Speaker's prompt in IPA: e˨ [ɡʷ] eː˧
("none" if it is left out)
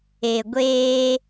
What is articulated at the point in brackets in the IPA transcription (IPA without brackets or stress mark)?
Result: ɡʷ